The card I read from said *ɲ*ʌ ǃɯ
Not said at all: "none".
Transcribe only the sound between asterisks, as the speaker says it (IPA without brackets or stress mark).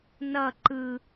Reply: n